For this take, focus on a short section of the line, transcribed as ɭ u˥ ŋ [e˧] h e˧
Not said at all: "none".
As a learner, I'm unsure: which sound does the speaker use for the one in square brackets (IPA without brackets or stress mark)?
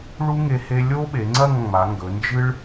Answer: e˧